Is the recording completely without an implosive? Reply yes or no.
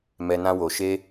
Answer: yes